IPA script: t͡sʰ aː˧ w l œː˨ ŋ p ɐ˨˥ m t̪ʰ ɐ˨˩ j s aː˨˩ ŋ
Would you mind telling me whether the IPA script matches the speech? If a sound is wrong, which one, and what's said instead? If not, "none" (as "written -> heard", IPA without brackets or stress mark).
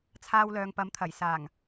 none